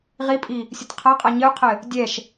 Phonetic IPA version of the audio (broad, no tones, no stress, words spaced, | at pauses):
ʁipʼi | sʲɘtqʰaqʼa ɲɘu̯qʰɘ | dʲɛʃ